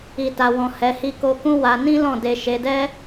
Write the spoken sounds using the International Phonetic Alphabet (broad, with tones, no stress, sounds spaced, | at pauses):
i˨ t a˨ w ɔ̃˨ h ɛ˨˦ h i˦ k o˦ k ũ˦ w a˧ n ĩ˦ l ɔ̃˦˨ d e˧ ʃ e˧ d ɛ˦